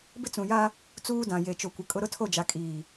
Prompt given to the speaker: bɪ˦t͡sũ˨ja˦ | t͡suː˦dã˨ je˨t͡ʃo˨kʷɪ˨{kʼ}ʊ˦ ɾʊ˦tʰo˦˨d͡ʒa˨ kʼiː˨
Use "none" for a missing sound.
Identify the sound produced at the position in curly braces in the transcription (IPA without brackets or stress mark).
kʼ